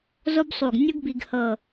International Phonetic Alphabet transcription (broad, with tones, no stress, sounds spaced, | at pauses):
z o˥ b sˤ u˧˩ ɡ nʲ ɯ˥ ɡ b i˧ ɡ h ɤ˧˩